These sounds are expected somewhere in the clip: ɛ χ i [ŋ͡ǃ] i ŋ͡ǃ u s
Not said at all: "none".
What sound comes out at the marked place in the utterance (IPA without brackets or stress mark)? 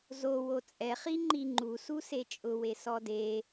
ŋ͡ǃ